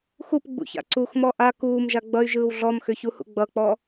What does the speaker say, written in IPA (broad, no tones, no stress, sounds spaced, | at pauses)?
x u p ɡ͡b ṵ ç a̰ ǀ u x m ɔ ʔ a k uː m ʒ a ɡ͡b ʌ y̯ ʒ ɯː w ɮ ɔ m x ʏ ç u h ṵ ɡ͡b ʌ k͡p ɔ